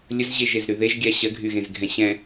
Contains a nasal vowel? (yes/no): yes